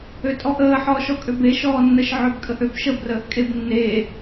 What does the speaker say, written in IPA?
øtʼɔʔəː ħɔːʃɔkʼøbe ʃɔːnːəʃ ʕøbkʼəʔøbʃə brəːʔkʼebnːeː

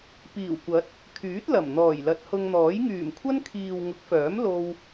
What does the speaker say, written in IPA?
piː˨˩wkʷɐ˨˥t̚ | kʰyː˨˥t̚lɐ˨˩m n̪ɔː˨˩jlɐ˨˥t̚hʊ˧ŋn̪ɔː˨˥j ŋyː˨˩mkʷʰɐ˥nkʰiː˨w ŋʊ˨˥k̚fœː˨˥m lo˧w

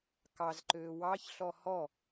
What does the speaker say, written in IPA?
kɑzǃøː wɑçɬɔ hɔ

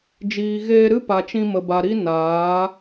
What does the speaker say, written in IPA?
d͡ʒiː˨ɣeː˧ɾɨ˦ pa˨t͡ʃĩ˧mə˨ba˨ ɾi˦ naː˨˦

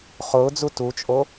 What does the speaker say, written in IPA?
χʊːd͡zu tut͡ʃʼo

